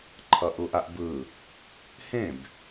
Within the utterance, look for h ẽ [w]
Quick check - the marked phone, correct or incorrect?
incorrect